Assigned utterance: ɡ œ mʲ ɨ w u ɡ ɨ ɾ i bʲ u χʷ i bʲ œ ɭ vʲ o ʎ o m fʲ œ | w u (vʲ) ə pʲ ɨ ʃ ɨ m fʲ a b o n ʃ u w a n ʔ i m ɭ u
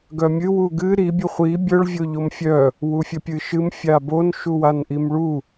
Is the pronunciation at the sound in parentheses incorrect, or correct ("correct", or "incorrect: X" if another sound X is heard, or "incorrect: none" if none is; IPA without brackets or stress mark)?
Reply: incorrect: fʲ